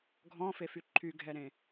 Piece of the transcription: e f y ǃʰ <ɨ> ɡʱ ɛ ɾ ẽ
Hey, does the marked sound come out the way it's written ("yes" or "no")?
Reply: no